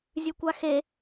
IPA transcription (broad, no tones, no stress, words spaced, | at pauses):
zʲʉkʷaxe